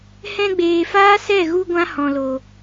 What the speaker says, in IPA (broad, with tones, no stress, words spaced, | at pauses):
hɛ̃˧ɡ͡beː˨faː˦ sɛ˦˨ɣu˧ ɡʷã˦hɔ̃˨lo˨